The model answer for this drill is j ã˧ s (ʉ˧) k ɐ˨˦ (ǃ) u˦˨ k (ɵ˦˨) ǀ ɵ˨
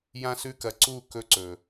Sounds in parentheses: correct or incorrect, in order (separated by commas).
correct, incorrect, correct